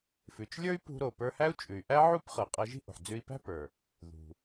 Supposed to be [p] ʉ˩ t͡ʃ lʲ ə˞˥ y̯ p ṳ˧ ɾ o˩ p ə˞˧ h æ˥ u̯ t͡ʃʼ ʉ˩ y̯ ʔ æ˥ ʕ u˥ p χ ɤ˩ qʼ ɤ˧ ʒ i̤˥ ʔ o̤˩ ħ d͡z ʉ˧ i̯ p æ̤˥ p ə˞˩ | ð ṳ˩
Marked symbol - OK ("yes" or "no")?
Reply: no